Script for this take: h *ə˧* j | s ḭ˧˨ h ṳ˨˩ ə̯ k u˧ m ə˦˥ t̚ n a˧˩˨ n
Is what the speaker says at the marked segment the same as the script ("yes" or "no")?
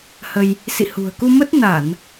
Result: yes